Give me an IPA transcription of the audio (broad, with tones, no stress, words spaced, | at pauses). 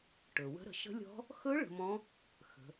ʈɵ˩ wə̤˧˥ɾə̤˩˧ ʃə̤˧˥lʲɔ̤˧˥ | xɵ˧˥ ɭə̤˩˧mɔ̃˧˥ | xə̤˩˧